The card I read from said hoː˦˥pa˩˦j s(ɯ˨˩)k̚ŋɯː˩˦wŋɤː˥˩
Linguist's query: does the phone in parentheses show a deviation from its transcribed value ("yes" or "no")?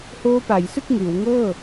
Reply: yes